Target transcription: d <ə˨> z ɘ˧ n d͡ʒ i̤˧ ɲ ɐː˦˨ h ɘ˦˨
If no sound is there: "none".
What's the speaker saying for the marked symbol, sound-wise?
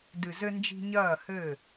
ɨ˨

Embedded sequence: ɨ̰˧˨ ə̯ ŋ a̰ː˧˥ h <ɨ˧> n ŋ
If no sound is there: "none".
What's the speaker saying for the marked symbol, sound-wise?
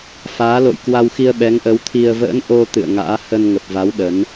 ə˧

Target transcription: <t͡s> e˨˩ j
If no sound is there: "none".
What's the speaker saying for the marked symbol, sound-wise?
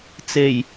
t͡s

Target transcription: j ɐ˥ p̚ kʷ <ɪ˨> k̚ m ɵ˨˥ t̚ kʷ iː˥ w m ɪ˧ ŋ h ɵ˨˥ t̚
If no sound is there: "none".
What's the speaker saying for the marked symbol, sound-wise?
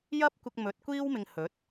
ɪ˧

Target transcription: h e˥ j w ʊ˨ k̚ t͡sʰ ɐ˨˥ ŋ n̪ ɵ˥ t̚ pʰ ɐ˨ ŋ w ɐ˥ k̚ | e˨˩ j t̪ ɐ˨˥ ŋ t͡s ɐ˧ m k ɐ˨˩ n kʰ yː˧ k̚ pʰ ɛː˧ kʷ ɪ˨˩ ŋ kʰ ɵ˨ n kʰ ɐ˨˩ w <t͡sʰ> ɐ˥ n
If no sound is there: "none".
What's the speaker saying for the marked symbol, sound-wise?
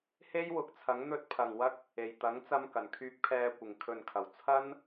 t͡sʰ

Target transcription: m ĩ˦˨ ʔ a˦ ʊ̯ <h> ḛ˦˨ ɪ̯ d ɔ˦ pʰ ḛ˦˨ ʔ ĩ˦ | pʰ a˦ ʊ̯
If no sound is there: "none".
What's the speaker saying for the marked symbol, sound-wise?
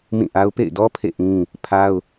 p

